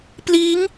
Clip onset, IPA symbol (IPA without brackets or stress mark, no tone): p